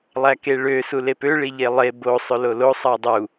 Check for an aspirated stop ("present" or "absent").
absent